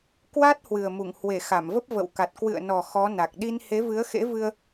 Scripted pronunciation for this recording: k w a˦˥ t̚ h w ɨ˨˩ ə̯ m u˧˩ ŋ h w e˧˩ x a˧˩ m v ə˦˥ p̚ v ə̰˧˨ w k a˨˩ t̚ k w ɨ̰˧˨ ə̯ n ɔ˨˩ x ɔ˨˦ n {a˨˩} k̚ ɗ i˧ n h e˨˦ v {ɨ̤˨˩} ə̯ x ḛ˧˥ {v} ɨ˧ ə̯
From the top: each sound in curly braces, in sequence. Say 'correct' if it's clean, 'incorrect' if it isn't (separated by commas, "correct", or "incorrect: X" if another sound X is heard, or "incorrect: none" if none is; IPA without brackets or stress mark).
correct, incorrect: ɨ˨˦, correct